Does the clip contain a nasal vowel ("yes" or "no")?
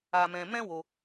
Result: yes